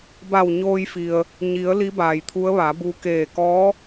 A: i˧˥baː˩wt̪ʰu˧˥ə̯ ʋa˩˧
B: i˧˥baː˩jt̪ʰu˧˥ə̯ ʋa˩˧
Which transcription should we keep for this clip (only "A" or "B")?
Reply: B